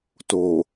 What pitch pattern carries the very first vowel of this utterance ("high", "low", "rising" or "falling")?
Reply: low